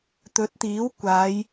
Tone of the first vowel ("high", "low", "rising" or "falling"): rising